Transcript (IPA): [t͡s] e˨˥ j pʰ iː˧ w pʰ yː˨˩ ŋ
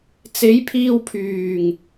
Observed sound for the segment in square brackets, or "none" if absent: t͡s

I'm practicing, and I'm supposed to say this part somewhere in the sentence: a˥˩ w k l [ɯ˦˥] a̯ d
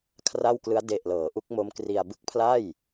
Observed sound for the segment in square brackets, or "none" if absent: ɯ˦˥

